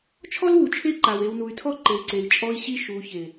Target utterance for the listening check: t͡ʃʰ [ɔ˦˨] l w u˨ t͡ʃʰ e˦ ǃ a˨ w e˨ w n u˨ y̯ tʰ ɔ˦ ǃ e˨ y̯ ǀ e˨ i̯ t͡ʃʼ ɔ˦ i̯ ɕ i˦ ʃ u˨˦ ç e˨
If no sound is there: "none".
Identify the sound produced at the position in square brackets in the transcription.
ɔ˦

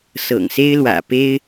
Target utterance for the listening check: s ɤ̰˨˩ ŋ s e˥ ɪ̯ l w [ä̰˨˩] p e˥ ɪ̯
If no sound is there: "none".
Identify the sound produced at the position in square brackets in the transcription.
ä̰˨˩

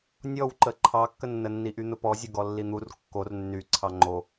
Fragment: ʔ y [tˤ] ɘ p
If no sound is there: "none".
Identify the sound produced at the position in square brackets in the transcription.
n̪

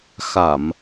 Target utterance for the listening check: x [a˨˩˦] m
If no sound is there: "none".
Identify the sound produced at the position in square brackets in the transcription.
a˨˩˨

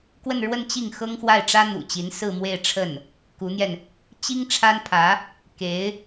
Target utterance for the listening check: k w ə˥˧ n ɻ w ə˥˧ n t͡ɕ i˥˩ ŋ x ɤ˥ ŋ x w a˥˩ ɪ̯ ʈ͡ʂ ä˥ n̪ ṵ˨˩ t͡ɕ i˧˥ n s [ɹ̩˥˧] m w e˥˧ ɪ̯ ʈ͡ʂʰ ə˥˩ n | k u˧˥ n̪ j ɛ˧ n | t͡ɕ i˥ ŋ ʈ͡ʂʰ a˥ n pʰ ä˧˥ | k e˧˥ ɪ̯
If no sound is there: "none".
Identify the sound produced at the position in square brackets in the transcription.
ɹ̩˥˧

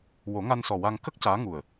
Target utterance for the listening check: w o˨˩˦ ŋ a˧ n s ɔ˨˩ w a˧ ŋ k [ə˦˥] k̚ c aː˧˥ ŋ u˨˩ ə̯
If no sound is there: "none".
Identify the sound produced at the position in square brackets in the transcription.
ə˦˥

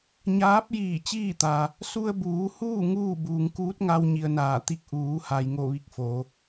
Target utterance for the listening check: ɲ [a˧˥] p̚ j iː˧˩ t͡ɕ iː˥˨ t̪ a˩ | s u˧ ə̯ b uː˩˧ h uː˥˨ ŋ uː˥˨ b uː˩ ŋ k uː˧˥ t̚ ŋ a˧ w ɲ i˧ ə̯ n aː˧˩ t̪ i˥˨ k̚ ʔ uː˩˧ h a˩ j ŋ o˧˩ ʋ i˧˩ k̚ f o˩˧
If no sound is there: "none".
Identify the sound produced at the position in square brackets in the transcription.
aː˧˥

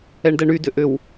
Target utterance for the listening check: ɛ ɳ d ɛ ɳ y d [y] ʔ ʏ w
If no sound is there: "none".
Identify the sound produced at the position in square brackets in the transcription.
ʏ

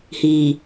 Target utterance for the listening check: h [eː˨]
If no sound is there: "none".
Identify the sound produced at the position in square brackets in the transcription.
iː˨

